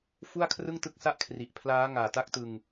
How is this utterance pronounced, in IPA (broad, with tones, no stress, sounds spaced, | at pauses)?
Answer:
f u˥˩ a̯ kʰ r ɯ˥˩ ŋ t ɯ˥˩ k̚ s a˥˩ ʔ kʰ r i˨˩ ʔ pʰ l aː˦˥ ŋ aː˨˩ t a˦˥ k̚ t ɯ˧ ŋ